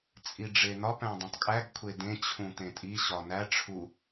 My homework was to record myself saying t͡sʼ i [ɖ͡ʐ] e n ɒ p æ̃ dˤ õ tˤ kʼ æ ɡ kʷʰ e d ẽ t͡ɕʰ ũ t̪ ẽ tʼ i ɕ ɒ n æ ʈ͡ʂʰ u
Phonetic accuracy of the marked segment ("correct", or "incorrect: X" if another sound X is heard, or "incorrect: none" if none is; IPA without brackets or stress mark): correct